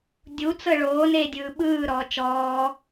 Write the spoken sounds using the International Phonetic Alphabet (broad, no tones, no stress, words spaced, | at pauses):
dʲut͡sɤ ɭoːneːdʲɯː ɓɯːɾɔː t͡ʃɔː